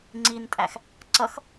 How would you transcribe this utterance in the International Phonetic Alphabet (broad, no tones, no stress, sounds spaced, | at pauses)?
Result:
ŋ͡ǀ i n tʼ æ x | ǀ ʌ x